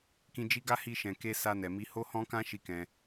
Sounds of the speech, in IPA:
kĩ˨d͡ʒi˨˦ɡa˧ hi˧ʃɛ̃˨ke˧ sa˧nɛ˨mi˧ ho˦hɔ̃˦kã˦ ʃi˦˨kɛ̃˧

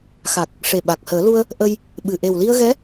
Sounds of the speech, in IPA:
xa˨˩k̚ | ʂe˨˩ɓa˨˩k̚həː˨˩˦lu˧ə̯ | ʔə˧j | ɓɨ˨˩ ʔe˨˩wli˧ə̯ɣɛ˧˥

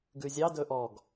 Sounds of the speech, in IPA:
ɡʉzʲɑ dɵʔɔɡ

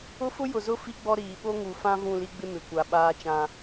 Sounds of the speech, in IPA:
ʊ˦fʊ˦jʊ˨zʊ˦ fi˦ɡ͡bɔ˦ ɾiː˨ ɓo˦ŋu˨fã˦ vũ˦˨li˦ɡ͡bɪ˦ mɪ˨kʷa˨ ɓaː˦t͡ʃã˦

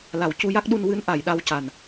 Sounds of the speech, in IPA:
la˨˩˨w cu˧ja˦˥k̚ɗu˧n wɨ˧˥n ʔa˨˩˨jɗa˧w ca˨˩n

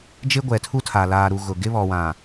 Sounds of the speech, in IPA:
d͡ʒɪ˦ɡʷɛ˨tʰu˦tʰa˨ laː˨ɾu˨ ɣʊ˨ ɡɪ˦βɔ˨wã˨

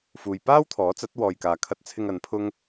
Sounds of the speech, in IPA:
fuː˨j paː˥wt̪ʰɔː˨˥t͡sɐ˨˥t̚ wɔː˨jkaː˨kʰɐ˧t̚t͡sʰɪ˧ŋ ɐ˨˧npʰʊ˥ŋ

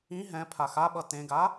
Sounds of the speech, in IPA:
ĩ ɦɛ̃ pʰaxaɓʌ tẽɡa

